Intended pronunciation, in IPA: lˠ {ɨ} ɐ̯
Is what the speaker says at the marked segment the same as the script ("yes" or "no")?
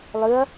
yes